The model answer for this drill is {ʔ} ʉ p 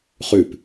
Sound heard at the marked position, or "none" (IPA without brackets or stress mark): χ